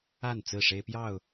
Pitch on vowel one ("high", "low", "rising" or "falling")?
falling